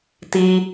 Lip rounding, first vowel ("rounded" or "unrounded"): unrounded